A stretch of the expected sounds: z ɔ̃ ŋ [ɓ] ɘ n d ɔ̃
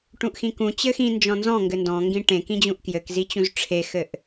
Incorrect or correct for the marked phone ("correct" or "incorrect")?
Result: incorrect